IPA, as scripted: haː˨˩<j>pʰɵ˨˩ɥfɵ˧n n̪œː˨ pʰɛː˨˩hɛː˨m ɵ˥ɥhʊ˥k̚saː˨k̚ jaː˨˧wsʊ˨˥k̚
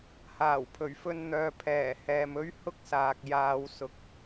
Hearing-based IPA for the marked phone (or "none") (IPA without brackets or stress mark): w